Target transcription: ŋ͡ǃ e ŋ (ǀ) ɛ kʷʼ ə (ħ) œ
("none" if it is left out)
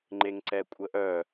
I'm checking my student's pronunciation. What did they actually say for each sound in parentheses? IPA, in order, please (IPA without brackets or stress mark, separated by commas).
ǀ, ʔ